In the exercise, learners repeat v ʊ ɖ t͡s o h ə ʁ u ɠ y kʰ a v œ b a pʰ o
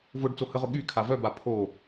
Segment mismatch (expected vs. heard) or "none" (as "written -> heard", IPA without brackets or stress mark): u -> ʊ